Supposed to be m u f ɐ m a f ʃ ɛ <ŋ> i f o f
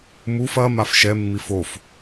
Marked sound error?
yes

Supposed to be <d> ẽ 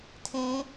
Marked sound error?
yes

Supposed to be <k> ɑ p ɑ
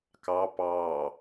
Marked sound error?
no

